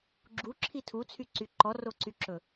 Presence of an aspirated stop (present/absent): present